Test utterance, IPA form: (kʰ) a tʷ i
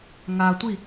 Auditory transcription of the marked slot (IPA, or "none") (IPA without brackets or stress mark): ŋ